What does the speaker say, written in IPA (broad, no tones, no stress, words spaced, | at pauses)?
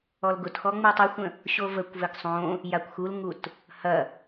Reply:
ɔlɡʊtxɔ ŋ͡mutˤəxʷə̃ | ɕovəkʷvɘɡ sˤõ | jakʷxulŋut | hɐ